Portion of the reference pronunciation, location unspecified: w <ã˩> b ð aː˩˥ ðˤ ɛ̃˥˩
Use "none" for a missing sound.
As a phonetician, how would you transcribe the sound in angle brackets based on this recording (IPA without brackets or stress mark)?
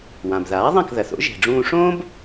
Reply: ã˩